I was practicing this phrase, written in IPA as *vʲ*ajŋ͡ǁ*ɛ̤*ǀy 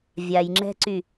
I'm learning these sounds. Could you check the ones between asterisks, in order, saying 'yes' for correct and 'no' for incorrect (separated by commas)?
yes, yes